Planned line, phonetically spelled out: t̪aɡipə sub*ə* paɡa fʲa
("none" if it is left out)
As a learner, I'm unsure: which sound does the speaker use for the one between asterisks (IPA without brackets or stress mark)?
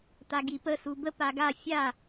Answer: ə